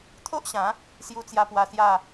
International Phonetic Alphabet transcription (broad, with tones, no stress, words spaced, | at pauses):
t̪ʰo˦ʔɕã˨˦ | sju˧t͡sja˧pwa˧ sja˥˧